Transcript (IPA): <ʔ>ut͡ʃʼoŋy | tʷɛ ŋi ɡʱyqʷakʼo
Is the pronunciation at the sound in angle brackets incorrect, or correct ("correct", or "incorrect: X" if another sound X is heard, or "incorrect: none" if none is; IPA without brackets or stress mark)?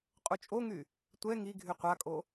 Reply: incorrect: qʼ